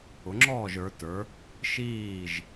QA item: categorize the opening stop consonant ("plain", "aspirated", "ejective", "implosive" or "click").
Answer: click